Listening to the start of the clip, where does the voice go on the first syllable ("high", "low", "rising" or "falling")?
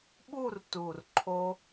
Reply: falling